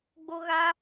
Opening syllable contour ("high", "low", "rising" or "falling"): high